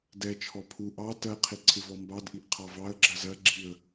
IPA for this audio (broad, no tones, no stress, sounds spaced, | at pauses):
d ɛ t͡ʃʰ ɔ pʰ u ʔ ɑ t ɜ qʰ i ǀʰ ɪ v ɔ m b ɑ d ʔ i ʔ qʰ ɑ v ɑ ə̯ ɡ͡ǁ ɜ z ɜ ɡ͡ǁ i ə̯